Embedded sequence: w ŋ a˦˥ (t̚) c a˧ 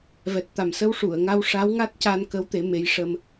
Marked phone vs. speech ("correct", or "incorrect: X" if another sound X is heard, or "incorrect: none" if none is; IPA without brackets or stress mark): correct